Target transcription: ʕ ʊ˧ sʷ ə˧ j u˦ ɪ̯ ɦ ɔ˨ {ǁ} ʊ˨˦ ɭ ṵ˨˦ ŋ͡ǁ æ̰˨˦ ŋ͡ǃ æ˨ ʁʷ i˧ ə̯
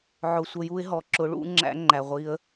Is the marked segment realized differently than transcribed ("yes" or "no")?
no